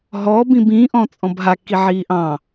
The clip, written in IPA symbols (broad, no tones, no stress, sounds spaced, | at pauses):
ɦ ɔː b ĩ b ĩ ʔ ɔ̃ t͡sʼ ɔ̃ b ɦ a k i ʕ iː ʔ ɑ̃